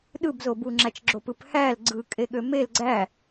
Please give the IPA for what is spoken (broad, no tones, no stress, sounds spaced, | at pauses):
ɗ ɯ b z o b u ŋ͡ǁ æ t͡ʃ ɡ͡ǁ o p ɯ p h æ l ɡ͡ǀ ɯ kʼ e ɠ ø m e l ɡ͡ǀ æ